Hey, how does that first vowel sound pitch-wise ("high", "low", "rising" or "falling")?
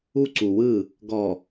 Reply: high